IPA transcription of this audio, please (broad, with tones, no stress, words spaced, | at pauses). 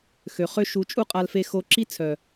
xø˨χø˧ ʃu˨˦t͡ʃʼu˦qʼa˧lfe˧ xo˧ ǁi˦t͡sʰœ˨